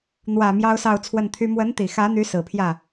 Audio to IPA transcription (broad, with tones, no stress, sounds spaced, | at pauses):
n̪ w ä˨˩ m j ɑ˥ ʊ̯ s ɑ˥˧ ʊ̯ t͡sʰ w ə˥˩ n t̪ʰ y˥ m w ə˧˥ n t̪ i˨˩ x ä˧˥ n̪ y˧˥ s ɹ̩˨˩ pʰ j ä˥˩